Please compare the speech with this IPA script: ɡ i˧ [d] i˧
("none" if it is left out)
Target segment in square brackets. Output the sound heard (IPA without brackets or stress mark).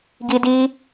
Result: d